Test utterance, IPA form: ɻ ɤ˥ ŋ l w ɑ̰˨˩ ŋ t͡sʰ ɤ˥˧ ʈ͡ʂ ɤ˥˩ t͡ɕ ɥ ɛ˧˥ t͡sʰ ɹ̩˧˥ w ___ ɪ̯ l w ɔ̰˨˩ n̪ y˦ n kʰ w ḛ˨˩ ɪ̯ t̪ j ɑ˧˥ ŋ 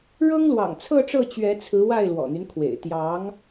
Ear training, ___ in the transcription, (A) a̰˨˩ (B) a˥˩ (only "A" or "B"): B